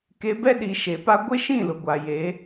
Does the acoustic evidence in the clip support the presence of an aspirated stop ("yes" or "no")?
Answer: no